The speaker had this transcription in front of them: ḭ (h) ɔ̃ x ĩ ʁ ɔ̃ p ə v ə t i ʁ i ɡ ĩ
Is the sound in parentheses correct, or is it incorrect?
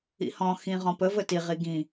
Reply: correct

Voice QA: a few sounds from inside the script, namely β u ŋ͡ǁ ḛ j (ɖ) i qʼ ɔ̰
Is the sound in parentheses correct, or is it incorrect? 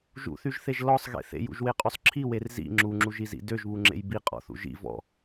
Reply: incorrect: b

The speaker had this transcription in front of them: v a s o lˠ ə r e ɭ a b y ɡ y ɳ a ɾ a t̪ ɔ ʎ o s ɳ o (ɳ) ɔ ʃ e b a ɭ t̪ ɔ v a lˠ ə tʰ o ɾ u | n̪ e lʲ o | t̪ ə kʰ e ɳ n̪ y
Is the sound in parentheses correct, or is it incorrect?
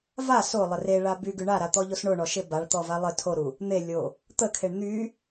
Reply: correct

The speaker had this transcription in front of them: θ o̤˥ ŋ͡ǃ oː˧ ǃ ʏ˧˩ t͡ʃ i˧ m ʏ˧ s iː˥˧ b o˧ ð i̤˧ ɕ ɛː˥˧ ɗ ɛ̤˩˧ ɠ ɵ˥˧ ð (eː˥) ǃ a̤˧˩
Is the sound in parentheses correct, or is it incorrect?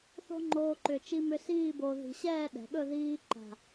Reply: incorrect: iː˥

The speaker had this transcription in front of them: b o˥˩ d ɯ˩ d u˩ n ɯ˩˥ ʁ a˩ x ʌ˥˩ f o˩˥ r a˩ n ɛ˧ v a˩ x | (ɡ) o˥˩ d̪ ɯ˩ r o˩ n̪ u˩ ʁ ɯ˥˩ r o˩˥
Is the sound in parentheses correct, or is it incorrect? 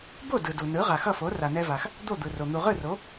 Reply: incorrect: d̪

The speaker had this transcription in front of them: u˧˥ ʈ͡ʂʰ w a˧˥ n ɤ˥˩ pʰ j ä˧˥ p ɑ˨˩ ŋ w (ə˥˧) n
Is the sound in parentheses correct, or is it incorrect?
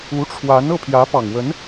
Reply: incorrect: ə˧˥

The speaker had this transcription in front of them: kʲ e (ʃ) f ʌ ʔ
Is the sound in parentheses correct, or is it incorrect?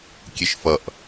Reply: correct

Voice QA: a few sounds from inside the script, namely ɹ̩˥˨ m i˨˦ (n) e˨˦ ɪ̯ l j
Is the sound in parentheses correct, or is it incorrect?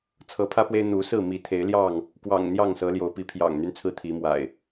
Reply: incorrect: t̪ʰ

